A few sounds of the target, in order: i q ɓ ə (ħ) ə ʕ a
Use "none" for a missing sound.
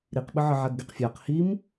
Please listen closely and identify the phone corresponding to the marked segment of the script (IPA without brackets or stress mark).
ʕ